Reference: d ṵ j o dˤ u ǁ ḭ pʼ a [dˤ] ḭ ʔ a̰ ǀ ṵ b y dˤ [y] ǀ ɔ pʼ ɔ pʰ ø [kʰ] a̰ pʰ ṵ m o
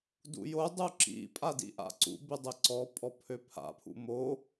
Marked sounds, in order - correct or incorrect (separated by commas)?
incorrect, incorrect, incorrect